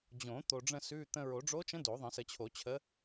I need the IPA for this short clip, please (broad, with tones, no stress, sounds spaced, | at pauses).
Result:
d͡ʑ õ˨˩˦ t̪ o˧ ɖ͡ʐ ə̃˥˧ s ʉ˧˥˧ t̪ ə̃˧ ɹ o˨˩˦ ɖ͡ʐ o˧˥ t͡ʃ ə̃˧˥ d o˨˩˦ ðˤ ə̃˨˩˦ s ə˨˩˦ t͡ɕʰ o˨˩˦ t͡ɕʰ ə˧˥